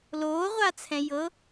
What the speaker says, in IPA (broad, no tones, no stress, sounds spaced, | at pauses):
l oː ʁʷ a t͡sʰ ɛ̃ j ɤ